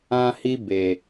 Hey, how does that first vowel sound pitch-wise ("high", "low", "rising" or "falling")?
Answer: high